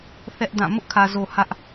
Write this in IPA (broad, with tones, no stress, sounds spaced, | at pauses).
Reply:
θ ɛ˦ ʔ d ã˦˨ m ʊ˦ ʔ kʰ ä˨ z o˨ h ä˦ ʔ